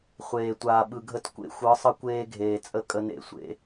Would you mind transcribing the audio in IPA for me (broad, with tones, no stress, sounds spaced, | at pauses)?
χʷ eː˨ tʷ aː˨ ɓ ɯ˨ ɡʱ ə˦˨ t kʷ ḛ˦ xʷ ɯ˨˦ sˤ ə˦ kʷ eː˦ ɡʱ eː˨ t͡sʼ ə˦ kʼ ə˦ n ḛ˦˨ sʷ ḛ˦